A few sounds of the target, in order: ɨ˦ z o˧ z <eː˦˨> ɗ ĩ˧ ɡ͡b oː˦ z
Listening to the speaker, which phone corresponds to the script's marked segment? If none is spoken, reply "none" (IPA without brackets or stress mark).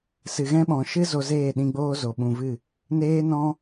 eː˦˨